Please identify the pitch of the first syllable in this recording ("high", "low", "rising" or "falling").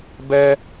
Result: high